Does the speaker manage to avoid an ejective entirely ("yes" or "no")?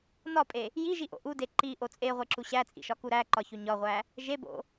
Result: no